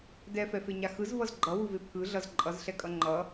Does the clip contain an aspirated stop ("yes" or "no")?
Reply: yes